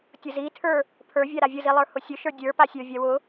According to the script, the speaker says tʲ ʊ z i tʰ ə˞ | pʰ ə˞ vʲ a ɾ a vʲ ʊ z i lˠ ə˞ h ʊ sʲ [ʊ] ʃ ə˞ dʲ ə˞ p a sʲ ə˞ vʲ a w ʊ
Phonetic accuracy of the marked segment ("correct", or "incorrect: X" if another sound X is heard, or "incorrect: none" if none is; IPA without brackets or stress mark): correct